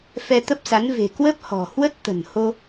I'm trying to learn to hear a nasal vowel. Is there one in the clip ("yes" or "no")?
no